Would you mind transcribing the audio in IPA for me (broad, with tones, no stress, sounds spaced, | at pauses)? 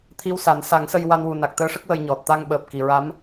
t̪ʰ i˧ w s a˨˩˦ n s a˨˩˦ ŋ s ə˧ j w a˧ n w u˨˩ n a˨˩ k̚ t̪ əː˧˥ ʂ ə˦˥ k̚ w ə˧ j ɲ ɔ˨˩ t̚ t̪ a˧ ŋ ɓ əː˨˩ p̚ k i˨˩˨ ɹ a˧˥ m